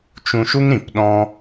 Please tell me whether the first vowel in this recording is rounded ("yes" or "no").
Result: yes